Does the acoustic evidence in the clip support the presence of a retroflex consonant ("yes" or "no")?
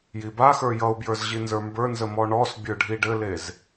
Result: yes